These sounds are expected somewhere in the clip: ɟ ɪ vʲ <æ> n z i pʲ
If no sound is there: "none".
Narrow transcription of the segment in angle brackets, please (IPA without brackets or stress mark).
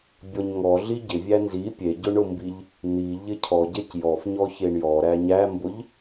æ